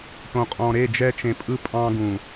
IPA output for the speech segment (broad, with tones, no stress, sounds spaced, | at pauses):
ʈ õ˨ qʼ ɔ̃˨ ɾ e˦˨ d͡ʒ ɛ˦ t͡ʃ ẽ˨ pʼ ɯ˦ pʼ ɑ̃˦ ɡ ũ˨